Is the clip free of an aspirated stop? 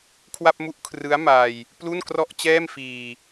no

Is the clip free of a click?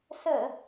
yes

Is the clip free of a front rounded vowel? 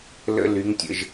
no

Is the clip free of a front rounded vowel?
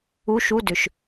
no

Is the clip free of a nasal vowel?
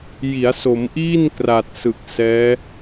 yes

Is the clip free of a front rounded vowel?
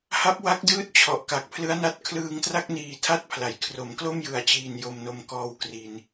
yes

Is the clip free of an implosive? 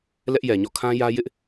yes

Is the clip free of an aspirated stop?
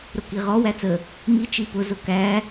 yes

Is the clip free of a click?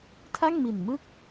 yes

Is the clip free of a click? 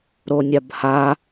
yes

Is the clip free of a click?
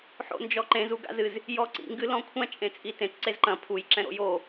no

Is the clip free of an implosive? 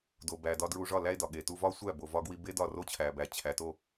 no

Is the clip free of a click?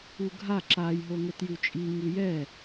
no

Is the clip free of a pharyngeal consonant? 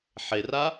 no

